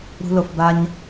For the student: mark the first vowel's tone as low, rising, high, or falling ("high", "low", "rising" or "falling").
high